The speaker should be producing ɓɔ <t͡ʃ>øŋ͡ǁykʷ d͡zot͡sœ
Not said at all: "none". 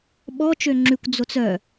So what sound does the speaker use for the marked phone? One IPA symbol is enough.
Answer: t͡ʃ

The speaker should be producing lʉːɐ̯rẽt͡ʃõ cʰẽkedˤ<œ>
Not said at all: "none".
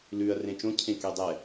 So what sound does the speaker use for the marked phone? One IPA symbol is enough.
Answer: ɛ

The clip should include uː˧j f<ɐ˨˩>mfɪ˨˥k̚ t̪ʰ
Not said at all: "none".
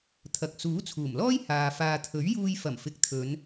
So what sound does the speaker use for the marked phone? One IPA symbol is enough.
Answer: ɐ˨˩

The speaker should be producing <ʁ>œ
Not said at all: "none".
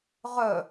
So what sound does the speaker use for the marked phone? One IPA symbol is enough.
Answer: ʁ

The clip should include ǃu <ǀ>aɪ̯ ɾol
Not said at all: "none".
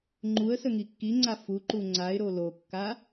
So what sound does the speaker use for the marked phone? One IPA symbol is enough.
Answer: ŋ͡ǀ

